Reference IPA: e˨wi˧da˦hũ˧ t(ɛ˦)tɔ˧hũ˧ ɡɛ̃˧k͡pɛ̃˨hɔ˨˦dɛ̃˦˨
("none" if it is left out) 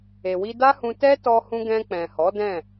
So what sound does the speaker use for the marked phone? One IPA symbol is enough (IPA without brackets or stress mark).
ɛ˦